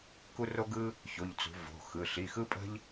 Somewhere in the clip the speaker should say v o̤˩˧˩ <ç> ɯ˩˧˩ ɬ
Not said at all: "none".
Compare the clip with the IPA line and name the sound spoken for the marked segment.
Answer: x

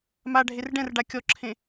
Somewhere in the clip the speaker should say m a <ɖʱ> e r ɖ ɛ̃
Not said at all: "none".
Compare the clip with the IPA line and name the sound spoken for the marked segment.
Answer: ɖʱ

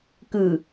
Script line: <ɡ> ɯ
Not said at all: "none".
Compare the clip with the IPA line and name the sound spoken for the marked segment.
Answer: k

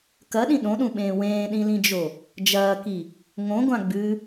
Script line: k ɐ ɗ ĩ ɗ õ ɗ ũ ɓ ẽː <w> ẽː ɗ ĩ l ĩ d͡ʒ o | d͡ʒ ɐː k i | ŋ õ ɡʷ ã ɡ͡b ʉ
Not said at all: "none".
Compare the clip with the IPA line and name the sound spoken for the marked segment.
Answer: w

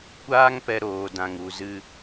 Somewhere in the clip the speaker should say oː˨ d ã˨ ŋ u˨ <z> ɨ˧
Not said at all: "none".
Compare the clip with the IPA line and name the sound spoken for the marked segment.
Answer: z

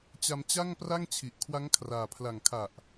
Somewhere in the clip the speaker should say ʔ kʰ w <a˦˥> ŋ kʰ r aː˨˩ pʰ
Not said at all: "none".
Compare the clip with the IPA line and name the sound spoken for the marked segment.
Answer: a˦˥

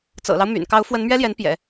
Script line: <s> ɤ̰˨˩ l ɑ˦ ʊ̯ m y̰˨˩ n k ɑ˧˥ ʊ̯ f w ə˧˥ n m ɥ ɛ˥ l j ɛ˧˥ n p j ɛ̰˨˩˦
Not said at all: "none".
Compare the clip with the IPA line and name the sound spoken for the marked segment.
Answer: t͡s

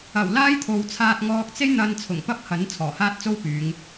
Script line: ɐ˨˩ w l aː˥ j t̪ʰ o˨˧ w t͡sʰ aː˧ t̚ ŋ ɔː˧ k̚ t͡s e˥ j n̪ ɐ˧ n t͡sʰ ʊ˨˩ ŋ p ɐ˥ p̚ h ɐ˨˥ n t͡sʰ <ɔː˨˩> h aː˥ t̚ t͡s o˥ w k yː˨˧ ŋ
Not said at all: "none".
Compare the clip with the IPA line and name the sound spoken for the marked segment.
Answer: ɔː˨˩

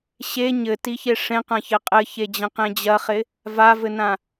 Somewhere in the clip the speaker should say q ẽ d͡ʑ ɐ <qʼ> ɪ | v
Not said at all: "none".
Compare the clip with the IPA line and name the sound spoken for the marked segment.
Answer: χ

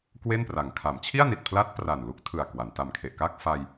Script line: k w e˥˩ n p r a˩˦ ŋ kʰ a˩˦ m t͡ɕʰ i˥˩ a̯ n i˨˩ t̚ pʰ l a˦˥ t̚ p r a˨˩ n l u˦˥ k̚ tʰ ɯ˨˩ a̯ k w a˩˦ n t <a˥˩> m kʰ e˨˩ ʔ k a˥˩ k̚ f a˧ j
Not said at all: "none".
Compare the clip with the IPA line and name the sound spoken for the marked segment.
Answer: a˨˩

